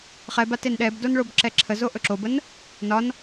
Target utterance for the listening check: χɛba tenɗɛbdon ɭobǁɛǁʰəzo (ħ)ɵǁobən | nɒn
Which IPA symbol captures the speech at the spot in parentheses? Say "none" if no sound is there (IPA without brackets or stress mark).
ʔ